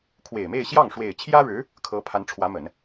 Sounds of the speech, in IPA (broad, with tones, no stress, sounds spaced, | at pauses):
kʰ w e˨˩ ɪ̯ m e˥˧ ɪ̯ ɕ j ɑ˥˩ ŋ ʂ w e˨˩ ɪ̯ t͡ɕʰ j ä˥ ɻ ɻ̩˧˥ | kʰ ɤ˧˥ pʰ a˧˥ n ʈ͡ʂʰ w ä˧˥ m ə˨˩˦ n